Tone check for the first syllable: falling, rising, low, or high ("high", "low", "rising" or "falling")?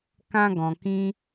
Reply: high